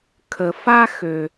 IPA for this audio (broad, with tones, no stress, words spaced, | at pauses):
kʰə˨ fa˦xø˨